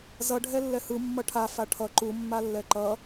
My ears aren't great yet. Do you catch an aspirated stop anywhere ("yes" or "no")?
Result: yes